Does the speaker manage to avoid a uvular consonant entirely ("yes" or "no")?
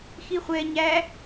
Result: no